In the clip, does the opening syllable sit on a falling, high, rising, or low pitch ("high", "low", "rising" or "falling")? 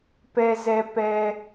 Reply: high